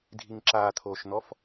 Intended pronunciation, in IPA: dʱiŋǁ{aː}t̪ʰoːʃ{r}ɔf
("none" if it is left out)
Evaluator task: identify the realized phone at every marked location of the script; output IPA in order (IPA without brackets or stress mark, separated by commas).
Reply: aː, n̪